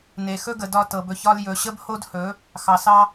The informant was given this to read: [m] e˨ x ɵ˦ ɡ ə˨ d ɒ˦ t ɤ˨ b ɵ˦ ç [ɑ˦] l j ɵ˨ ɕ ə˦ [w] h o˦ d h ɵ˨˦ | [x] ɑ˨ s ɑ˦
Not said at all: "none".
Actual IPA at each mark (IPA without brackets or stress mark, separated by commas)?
n, ɒ˦, b, x